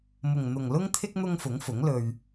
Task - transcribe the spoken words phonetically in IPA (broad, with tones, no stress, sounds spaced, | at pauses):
m ʊ˨ ŋ n̪ ʊ˨ ŋ l ʊ˥ ŋ t̪ʰ ɪ˥ k̚ n̪ ʊ˥ ŋ f ʊ˨˥ ŋ f ʊ˨˥ ŋ l ɵ˧ ɥ